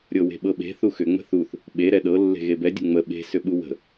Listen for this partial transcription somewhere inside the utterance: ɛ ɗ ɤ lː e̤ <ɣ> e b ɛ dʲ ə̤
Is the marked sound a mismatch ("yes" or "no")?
no